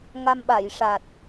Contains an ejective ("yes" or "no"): no